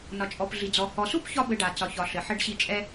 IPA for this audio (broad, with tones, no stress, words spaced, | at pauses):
nɒ˨t͡ʃʼɔ˨pɮi˨d͡zɔ˨ hɔ˨su˦pçɒ˧ bɘ˧ɖa˨ t͡sɒ˨çɒ˨ ɬɘ˨ ħɘ˧ɖɕi˧t͡ʃʼɛ˦